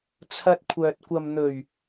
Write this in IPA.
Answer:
t͡sʰɐ˧t̚kʷʰœː˨t̚ kʷɐ˨mn̪ɵ˨˩ɥ

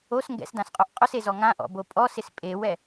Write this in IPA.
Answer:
os ŋɡɛ̰sdãsqʼoʔ qʼʊsezɔ ŋãʔɔ̰bo pʼɔsɪs pʼewɛ

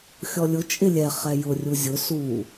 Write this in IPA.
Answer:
xʲɔlʲʊ t͡ʃʼɪlʲɛ χɛjʊ rʲuzʲʊ su

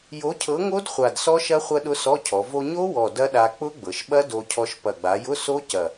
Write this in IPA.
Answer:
jo˨˥cʰɤ˨˥ŋo˦˥d χʷa˨˩dsɔ˦˥ʃɐ˦˥ χʷɐ˧ɗʊ˧ sɔ˧˥˧cʰɔ˩˧ vo˧ɲo˦˥wɔ˨˩ dɐ˦˥ɗa˧ k͡pʊ˦˥ɡ͡bɤ˩˧ʃɓɐ˦˥ do˧cʰɔ˧ʃ pɐ˨˩ɡ͡ba˩˧jʊ˧˥˧ so˦˥cɐ˨˩

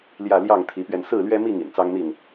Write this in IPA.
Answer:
ljä˥˨ ljɑ˥˨ŋt̪ʰi˨˦pɥɛ˧n sɹ̩˥˨lɥɛ˦mi˥˨ŋ ḭ˨˩nt͡sɑ˦ŋn̪i˥˨n

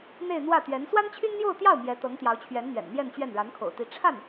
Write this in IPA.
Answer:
n̪e˥˧ɪ̯n̪wä˥˩t̪ɥɛ˧˥n swa˥nt͡ɕʰy˥nn̪jo˥˧ʊ̯t̪jɑ˥˩ʊ̯ mjɛ˧˥t̪ɤ˧˥ŋt̪jɑ˧˥ʊ̯t͡ɕʰɥɛ˧˥n n̪ɥɛ̰˨˩nn̪jɛ˥˧nt͡ɕɥɛ˥˩n ɻa˧˥nkʰo̰˨˩ʊ̯t̪i˧˥ ʈ͡ʂʰa˥˩n

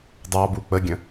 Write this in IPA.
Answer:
dˤɑbu k͡pəɡʲə̃

